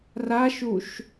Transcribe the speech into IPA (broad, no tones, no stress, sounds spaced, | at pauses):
r a ʃ u ʃ